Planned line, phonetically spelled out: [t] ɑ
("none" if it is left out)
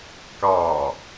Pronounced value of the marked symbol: k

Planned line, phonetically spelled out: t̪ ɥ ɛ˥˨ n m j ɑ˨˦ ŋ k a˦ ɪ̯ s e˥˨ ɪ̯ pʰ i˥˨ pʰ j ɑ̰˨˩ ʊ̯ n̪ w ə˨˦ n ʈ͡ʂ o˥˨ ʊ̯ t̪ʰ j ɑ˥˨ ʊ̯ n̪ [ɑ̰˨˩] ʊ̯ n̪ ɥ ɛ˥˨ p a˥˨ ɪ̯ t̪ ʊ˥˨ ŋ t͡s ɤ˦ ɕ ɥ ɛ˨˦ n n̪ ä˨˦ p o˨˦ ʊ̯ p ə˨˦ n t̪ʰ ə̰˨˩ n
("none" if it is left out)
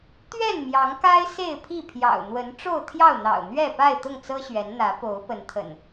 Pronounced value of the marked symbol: ɑ̰˨˩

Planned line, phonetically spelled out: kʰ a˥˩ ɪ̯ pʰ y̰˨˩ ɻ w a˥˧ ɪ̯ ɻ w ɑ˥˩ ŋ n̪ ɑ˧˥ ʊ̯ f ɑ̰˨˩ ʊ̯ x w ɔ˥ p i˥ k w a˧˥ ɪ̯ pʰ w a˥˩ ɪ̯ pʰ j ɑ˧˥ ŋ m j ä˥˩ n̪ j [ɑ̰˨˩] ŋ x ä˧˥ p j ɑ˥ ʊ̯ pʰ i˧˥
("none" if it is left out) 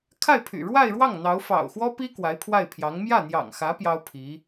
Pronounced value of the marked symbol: ɑ̰˨˩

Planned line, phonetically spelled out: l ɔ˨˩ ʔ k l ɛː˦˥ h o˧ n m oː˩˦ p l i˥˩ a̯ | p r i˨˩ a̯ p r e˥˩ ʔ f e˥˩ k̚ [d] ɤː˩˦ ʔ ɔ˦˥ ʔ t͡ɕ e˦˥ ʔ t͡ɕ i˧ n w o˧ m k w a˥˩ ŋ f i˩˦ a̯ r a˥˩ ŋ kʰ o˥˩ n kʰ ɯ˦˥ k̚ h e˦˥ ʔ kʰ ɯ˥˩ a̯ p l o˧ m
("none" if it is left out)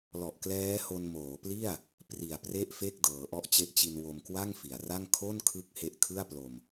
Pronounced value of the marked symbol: d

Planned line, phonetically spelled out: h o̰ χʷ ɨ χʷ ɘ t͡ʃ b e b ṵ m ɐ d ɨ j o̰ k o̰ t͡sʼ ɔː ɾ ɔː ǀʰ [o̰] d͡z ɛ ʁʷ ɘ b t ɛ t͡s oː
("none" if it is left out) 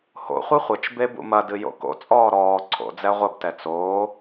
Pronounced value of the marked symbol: o̰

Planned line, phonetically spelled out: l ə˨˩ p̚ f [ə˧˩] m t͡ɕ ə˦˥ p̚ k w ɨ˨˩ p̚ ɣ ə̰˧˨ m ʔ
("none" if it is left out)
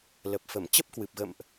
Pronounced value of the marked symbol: ə˧˩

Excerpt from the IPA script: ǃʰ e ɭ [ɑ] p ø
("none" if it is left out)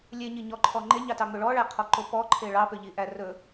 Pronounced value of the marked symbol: ɑ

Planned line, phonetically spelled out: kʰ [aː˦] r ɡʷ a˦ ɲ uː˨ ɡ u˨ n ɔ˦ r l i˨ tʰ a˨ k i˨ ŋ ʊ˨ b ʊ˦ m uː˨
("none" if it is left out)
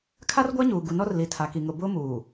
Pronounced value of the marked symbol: a˦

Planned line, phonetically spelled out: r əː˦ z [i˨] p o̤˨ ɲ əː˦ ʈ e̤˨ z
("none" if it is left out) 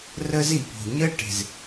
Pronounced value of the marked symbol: i˨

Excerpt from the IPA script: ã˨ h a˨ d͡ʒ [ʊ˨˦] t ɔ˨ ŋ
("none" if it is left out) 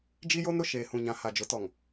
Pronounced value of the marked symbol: ʊ˨˦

